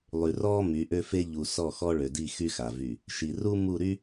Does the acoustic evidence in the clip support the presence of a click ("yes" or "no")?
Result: no